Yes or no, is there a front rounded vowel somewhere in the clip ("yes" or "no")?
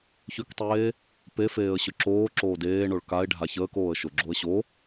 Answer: yes